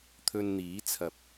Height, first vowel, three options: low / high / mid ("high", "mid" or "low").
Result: mid